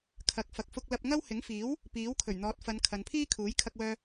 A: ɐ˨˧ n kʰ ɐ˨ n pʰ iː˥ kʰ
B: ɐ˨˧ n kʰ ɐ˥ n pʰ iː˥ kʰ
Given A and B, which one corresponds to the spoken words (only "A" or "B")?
A